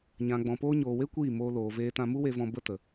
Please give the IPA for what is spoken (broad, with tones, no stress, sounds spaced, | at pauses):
ɲ ã˨ ɡ͡b ɔ̃˨ p oː˧ ɲ oː˨ w e˦ kʷ iː˦˨ m oː˧ l oː˨ v eː˧ t ã˧ m u˦ w e˧ v ɔ̃˧ b ə˦ t ə˨